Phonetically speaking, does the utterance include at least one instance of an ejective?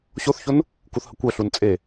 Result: yes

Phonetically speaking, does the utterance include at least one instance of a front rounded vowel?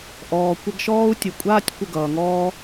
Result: no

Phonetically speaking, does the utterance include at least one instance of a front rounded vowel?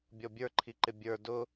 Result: no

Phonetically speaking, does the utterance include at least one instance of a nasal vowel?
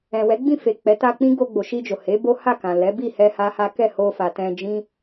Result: yes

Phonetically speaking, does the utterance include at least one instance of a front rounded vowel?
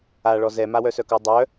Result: yes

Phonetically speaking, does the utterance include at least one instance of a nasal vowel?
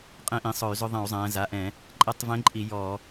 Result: yes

